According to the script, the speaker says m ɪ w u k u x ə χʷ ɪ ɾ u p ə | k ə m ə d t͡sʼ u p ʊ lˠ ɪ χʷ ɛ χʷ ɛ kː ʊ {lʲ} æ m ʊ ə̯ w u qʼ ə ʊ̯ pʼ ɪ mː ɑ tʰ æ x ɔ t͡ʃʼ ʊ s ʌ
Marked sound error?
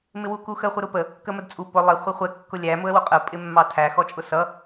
no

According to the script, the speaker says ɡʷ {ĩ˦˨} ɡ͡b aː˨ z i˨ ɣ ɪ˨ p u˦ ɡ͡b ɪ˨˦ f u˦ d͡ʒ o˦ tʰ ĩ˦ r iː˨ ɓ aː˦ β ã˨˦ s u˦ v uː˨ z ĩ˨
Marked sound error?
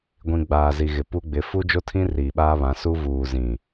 yes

